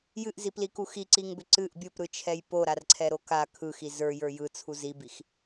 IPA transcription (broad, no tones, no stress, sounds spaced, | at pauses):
j ɨ ʔ z i p l i k u x i ǀ i ŋ b ʏ ǀ ɨ ʔ bʲ o p ɾ ɯ t͡ʃʰ ɛ j p o ɾ a r ǀʰ ɛ ɾ o k a kʰ ɯ x i z ə˞ j ə˞ j ɯ t͡sʰ u z i b i x